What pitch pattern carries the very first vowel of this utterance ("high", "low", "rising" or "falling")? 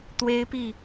high